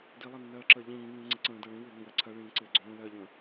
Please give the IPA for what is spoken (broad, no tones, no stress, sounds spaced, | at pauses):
d i lˠ ɜ nː ɜː ǁ əː ʎ ĩː ŋ ĩː ŋ͡ǀ ɪ ǀ ə̃ː d ɜ ɭ ĩ w ɪː ŋ ə̃ w ɜ ǀʰ ɜ ɭ ĩː ǀ ɪː ɡ͡ǀ õː l ɜ ʎ ə̃ː